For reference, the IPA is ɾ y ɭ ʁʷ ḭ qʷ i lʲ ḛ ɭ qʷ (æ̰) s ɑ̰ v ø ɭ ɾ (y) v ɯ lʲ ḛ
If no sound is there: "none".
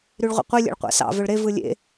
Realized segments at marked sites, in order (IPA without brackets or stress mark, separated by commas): æ̰, e